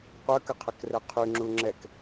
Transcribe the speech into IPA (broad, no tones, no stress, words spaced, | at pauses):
qʷœkəqʰəkrɛ qʰyŋ͡ǁu ŋ͡ǁɛk